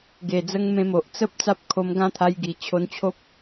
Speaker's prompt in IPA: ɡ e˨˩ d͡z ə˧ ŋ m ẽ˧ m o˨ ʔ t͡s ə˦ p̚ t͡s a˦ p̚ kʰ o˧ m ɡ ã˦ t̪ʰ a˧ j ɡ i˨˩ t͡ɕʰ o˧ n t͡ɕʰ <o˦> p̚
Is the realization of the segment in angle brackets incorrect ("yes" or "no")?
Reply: no